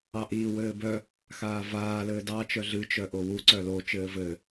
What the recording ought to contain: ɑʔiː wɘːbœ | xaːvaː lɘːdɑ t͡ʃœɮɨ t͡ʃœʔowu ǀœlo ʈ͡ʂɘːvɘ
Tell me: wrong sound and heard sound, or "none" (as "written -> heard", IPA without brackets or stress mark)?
ʈ͡ʂ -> t͡ʃ